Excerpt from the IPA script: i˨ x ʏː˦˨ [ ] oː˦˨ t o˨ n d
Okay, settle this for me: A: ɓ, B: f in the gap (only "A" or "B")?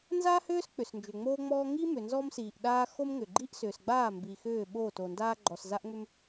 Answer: A